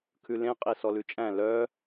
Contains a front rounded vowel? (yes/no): yes